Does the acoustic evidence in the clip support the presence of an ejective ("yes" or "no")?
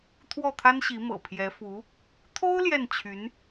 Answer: no